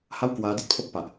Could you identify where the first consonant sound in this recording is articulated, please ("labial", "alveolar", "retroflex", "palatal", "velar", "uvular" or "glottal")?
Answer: glottal